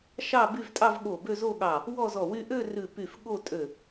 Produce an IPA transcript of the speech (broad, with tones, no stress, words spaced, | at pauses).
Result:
ʃɑ˥˧by˥˧v tʼɑ˥˧vɠo˧˩ bø˥˧zo˥˧ɠɑ˧˩ | wɔ˥˧zɔ˧˩wy˥˧ ʔø˥˧rʉ˧˩ py˧˩f ɠo˥˧tʼø˧˩